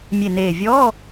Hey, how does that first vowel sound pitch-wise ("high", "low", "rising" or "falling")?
low